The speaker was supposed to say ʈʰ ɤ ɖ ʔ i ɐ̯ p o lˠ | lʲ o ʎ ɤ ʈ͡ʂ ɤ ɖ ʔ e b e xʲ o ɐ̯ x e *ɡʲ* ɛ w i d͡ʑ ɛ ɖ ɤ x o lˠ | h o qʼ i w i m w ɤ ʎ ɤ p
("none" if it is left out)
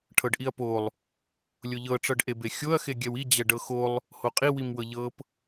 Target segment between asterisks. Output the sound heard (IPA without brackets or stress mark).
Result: ɡʲ